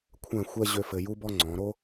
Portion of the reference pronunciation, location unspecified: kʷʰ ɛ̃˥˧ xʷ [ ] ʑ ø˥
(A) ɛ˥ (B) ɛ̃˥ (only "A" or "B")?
A